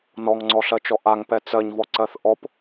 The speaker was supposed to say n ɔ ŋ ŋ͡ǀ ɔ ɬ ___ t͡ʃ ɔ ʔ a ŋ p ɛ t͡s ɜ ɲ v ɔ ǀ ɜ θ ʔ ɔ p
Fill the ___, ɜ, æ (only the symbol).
ɜ